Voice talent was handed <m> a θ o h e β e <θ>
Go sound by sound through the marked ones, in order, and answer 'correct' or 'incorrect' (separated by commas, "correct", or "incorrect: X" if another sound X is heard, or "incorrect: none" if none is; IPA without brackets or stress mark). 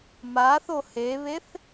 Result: correct, correct